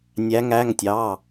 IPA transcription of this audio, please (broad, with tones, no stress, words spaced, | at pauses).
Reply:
nʲæ˧˥ŋæ˧˥˧ŋtʲɑ˧˥˧